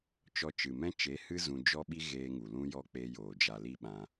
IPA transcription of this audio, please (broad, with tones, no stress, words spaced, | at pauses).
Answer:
t͡ʃɔ˧t͡ʃɨ˨mɛ̃˦ t͡ʃe˨˦hɨ˦ zũ˧d͡ʒɔ˦ɓi˦ ɣeː˧ŋu˨ lũ˦jɔ˦ k͡pe˧joː˨ d͡ʒa˨li˧ ɓã˧